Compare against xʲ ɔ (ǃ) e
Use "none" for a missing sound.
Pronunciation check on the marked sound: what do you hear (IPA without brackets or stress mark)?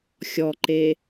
ǃ